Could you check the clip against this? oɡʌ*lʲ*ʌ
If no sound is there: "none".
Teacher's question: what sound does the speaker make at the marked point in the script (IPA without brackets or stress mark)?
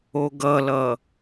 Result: l